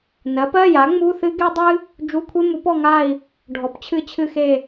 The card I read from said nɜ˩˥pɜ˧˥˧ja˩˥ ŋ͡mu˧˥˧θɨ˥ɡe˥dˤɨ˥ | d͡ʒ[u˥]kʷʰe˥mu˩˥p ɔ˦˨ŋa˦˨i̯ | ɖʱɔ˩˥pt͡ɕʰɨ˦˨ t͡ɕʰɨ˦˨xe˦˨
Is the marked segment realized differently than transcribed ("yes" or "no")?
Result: yes